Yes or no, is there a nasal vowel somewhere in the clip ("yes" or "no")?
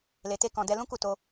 yes